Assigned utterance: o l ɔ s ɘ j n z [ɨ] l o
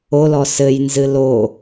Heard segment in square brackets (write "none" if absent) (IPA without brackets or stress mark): ɨ